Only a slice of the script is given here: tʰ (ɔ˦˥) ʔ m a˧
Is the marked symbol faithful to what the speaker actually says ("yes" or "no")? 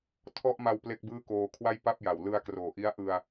yes